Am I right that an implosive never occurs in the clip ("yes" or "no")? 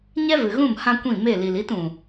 yes